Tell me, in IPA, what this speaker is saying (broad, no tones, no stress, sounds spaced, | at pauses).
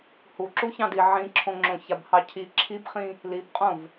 h u ǁ u ç ɑ̃ d i ʕ ĩ ǁʰ õ ŋ͡ǁ õ ç a b h ɑ cʰ i ǁʰ i b χ ĩ | l i b qʼ õ v